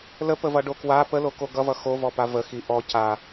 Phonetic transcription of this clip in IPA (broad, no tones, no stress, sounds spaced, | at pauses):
l ə p ə v ʌ ɖ o k w a p ə l o k o ɡ ʌ v ʌ x o v ɔ p a v ə x i ʔ ɔ c a